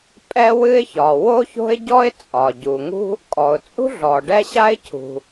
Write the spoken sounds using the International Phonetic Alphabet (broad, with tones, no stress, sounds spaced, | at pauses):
pʼ ɛ˥ w ɨ˥ ɪ̯ ç ɒ˩ w o˥ ç o̤˥ ɪ̯ ɟ ɔ˥ ɪ̯ t͡sʼ ɒ˩ ɟ u˩ ŋ ṳ˥ | kʼ ɔ˩ ʊ̯ t͡sʼ ṳ˥ ɮ ɔ˩ ɖ ɛ˥ ɕ a˥ ɪ̯ cʰ ṳ˩